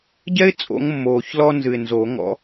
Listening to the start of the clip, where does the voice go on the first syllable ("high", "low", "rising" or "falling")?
high